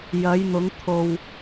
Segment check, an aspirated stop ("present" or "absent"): present